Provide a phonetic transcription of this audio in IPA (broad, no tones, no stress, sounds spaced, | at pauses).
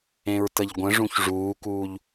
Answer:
ẽ ɹ t ə ʎ ɡʷ ə̃ ʐ ũ ç ʐ uː k uː ʎ